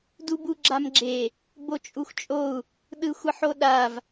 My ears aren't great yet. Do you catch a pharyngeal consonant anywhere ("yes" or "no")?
yes